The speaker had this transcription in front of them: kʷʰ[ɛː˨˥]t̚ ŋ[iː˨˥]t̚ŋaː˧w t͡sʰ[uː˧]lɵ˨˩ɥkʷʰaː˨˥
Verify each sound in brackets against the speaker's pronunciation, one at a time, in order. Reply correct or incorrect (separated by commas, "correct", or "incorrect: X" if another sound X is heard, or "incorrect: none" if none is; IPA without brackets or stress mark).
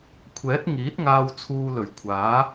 correct, correct, correct